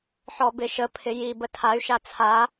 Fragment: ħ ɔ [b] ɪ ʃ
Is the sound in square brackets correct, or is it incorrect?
correct